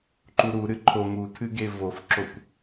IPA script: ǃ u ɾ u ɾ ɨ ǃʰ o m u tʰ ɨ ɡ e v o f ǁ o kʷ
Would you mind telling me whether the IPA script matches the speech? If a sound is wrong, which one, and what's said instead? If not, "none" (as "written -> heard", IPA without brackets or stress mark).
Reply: none